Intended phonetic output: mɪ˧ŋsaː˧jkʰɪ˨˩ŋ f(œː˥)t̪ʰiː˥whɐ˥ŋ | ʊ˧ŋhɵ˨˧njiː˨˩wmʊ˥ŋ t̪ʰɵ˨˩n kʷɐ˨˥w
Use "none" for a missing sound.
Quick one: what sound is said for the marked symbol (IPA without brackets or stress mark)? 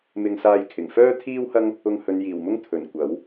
œː˥